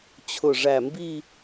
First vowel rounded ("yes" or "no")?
yes